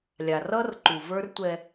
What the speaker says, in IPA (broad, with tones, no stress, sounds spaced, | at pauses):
lʲ a˨ r ʌ˦ r ǃ u˨ v ə˞˦ r tʷ ɛ˦